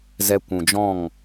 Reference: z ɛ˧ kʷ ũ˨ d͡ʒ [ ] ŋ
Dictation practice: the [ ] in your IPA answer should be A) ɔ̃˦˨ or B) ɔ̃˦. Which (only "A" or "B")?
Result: A